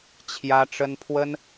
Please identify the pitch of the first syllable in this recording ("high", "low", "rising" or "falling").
high